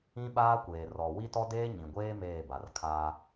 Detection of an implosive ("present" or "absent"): present